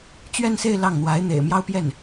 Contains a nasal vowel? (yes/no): no